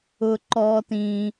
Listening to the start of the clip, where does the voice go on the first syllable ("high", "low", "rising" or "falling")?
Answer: low